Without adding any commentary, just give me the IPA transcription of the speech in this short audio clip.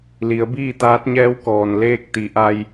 l i˩˧ ə̯ b iː˥˨ t̪ aː˧˥ t̚ ɲ ɛː˧˥ w k ɔː˩ n l eː˥˨ k̚ t̪ i˩˧ ʔ a˧ j

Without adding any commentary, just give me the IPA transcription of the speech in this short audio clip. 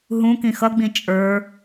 ɦ ũ k ĩ x ʌ ɡ͡b ĩ t͡ʃʼ ə˞

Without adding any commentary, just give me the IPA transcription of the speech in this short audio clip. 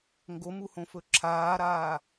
ŋ ɡ o m u h õ f ɵ ǁʰ aː ɾ aː

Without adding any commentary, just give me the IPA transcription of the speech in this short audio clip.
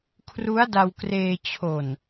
kʰ r u˦˥ a̯ d a˧ w k r eː˧ t͡ɕʰ o˨˩ n

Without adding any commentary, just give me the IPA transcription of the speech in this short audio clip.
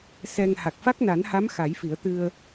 s ɛ˧ ŋ h a˨˩ k̚ f a˦˥ k̚ n a˨˩˦ n h a˧˥ m x a˨˩˦ j f i˨˩˦ ə̯ t̪ ɨ˧ ə̯

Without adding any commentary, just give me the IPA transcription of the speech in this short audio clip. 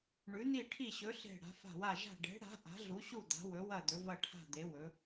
ɳ ʉ˨˦ n̪ i˦˨ ʈʰ i˦˨ ɕ ɵ˨˦ ɬ e̤˦˨ ɽ a̤˨˦ f a̤˦˨ w a˦˨ ʒ a̤˦˨ ɖ e̤˨˦ ɽ a̤˨˦ ʔ a̤˨˦ ɮ u˨˦ ɕ u˦˨ d̪ a̤˨˦ w ɵ˨˦ w ɐ˦˨ d̪ ɵ˨˦ v ɐ˦˨ ʈʰ a̤˦˨ d̪ e˨˦ w ɵ˨˦

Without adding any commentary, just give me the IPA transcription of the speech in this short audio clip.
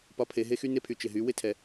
p ɒ˦ pʰ e˧ ɦ e˦ x y˦ n e˦ pʰ y˨ t͡ʃ ɪ˨ ɦ y˨˦ w ɪ˦ tʰ ɛ˨

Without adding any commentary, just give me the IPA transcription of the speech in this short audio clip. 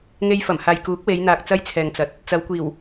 ŋ e˧ j f ɐ˨˩ m h aː˨ j k uː˨˥ k̚ w e˨˧ j n̪ aː˨ k̚ t͡s ɐ˥ j t͡sʰ ɛː˨ ŋ t͡s ɐ˨˥ t̚ | t͡s ɐ˨˧ w kʷ iː˨˩ w

